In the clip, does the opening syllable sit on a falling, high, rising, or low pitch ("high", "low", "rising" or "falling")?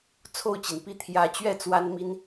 falling